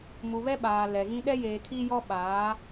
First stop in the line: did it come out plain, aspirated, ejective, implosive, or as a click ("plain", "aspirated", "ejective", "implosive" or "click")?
implosive